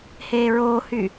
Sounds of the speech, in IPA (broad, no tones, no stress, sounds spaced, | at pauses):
h eː ɹ oː h y